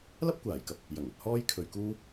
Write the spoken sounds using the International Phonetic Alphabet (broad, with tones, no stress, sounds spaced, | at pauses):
l ɐ˥ p̚ kʷ aː˨˩ j k ɐ˨ p̚ | j ɐ˨˩ ŋ ɵ˧ t̚ h ɔː˥ j kʰ ɵ˨ ɥ k uː˥